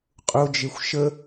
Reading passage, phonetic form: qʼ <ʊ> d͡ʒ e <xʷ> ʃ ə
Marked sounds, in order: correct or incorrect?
correct, correct

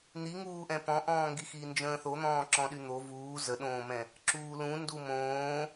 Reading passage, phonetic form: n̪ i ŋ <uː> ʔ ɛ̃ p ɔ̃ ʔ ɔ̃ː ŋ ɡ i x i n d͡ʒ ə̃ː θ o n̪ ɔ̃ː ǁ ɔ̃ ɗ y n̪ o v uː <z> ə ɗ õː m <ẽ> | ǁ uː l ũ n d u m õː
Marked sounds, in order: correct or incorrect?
correct, correct, incorrect

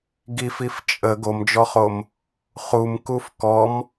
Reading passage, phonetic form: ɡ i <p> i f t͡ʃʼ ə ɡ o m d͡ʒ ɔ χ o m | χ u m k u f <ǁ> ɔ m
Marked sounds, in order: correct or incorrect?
incorrect, incorrect

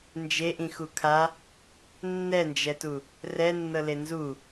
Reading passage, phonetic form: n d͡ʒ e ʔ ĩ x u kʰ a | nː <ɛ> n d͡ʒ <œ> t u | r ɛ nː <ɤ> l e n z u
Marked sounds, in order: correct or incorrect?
correct, incorrect, correct

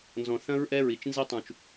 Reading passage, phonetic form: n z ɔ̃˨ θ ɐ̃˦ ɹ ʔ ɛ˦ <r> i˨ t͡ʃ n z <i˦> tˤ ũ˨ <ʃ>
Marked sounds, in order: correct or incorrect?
incorrect, correct, incorrect

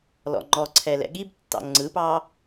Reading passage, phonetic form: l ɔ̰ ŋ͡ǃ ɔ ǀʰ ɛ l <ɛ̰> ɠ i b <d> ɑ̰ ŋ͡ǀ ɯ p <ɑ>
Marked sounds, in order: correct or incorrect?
correct, incorrect, correct

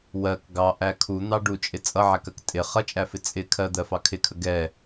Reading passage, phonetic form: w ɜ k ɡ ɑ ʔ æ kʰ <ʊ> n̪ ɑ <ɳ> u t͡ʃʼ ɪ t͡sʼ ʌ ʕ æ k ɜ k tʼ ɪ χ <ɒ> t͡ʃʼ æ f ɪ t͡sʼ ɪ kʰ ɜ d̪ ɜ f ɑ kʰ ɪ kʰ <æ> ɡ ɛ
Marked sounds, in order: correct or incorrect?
incorrect, incorrect, incorrect, incorrect

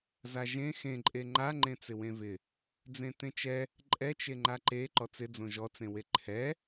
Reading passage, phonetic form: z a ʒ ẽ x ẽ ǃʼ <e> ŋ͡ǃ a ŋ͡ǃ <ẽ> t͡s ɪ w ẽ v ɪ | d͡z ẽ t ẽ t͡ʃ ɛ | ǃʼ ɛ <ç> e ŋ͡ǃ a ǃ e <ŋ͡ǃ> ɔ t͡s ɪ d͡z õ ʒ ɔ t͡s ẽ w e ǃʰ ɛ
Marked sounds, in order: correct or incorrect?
correct, correct, incorrect, incorrect

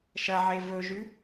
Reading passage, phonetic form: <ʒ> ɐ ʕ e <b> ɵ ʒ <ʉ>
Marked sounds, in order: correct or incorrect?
incorrect, incorrect, correct

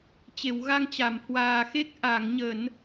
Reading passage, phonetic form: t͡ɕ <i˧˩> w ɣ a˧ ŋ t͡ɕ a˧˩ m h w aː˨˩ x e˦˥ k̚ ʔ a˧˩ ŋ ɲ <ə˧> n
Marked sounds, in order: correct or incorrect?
incorrect, incorrect

